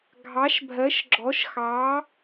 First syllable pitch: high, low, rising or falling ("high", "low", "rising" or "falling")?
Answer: rising